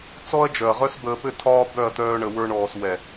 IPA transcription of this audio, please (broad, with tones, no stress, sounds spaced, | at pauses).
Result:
t͡s ɔ˦ ɐ̯ d͡ʒ œ˨ ɐ̯ ʁ œ˦ s b əː˧ p ɘ˦ tʰ ɒː˦ b œ˦˨ ɐ̯ t̪ œː˧ ɳ ə˧ w ə˞˦ ɳ ɔː˧ s w ɛ˨